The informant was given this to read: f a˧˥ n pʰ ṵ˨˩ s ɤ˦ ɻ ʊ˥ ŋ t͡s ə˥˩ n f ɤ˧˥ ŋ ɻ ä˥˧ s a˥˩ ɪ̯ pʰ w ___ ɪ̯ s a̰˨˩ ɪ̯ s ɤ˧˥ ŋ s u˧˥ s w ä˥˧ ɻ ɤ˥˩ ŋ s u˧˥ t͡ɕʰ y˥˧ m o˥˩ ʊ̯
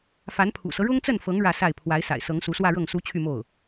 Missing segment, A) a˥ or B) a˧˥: B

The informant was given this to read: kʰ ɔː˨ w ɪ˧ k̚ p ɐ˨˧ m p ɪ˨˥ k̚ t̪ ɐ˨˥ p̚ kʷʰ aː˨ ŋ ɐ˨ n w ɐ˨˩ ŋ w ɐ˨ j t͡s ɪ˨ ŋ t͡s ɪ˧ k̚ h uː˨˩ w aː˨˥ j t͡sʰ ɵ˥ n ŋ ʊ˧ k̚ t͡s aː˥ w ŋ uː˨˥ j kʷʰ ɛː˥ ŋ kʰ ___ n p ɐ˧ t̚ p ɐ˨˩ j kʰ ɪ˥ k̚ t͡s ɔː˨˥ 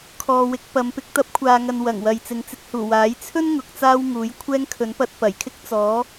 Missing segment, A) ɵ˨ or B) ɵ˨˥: B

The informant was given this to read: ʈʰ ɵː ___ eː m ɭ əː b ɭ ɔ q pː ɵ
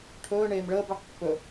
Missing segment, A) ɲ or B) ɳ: B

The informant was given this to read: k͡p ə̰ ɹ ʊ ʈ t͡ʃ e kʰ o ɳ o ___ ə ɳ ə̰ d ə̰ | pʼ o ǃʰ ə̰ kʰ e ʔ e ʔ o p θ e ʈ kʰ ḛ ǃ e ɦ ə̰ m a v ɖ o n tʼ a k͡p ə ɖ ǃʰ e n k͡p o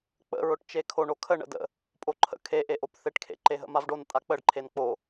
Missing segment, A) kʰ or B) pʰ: A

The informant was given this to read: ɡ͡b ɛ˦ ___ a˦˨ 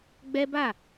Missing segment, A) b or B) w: A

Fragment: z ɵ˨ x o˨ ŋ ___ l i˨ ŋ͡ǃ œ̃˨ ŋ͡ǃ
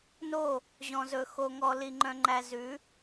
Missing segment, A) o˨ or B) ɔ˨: B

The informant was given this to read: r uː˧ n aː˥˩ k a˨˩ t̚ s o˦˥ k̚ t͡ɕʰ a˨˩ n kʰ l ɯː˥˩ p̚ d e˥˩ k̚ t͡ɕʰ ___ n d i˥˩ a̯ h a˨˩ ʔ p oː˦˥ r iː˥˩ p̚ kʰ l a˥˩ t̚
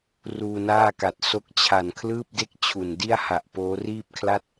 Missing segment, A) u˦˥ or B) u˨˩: B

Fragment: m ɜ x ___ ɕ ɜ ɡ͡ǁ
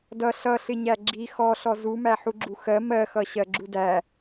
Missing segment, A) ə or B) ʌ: B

